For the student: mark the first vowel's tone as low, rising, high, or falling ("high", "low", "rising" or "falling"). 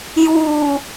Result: low